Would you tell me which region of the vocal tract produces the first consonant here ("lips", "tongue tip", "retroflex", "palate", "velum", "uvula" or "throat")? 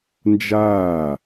tongue tip